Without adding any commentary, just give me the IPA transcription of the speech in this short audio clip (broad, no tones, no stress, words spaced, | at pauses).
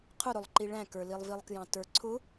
qʰʊɾʊlˠǃi ɭæ̃kə˞lilˠ vilˠkjɑ̃tə˞ǀʰʊ